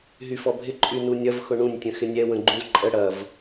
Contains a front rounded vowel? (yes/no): yes